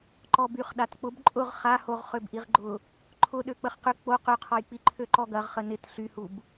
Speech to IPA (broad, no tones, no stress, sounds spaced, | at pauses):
ǃ ɔ b y χ ɗ a t k͡p ʊ b ǃʼ ʊ ʁ χ a h o ʁ χ ø b ʔ i ʁ ɡ͡ǃ ʊ | ǃʰ ʊ ɗ ø k͡p ə χ q ʏ k͡p o q ø qʰ ɔ j k͡p i ǃʰ ø ǃ ɔ ɡ ɐ ʁ χ ə n ɪ t ɬ y h u b